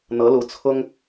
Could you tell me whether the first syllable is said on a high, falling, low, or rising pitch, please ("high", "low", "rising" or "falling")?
rising